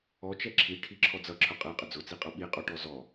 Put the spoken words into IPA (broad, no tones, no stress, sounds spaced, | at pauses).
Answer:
ɔ t͡ʃ ɛ ǁʰ i ʈʰ i ǁʰ ɔ d͡z ʌ ǁʰ ʊ qʼ ɛ qʼ ə d͡z ʊ t͡s i qʼ ʌ ɓ i qʼ ɔ ʈ ɔ z ɔ